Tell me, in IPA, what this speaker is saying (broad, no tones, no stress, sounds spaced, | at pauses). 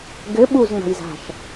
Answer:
ɡ ɘ ɓ u z ŋ͡m a̤ j z a̤ ʃ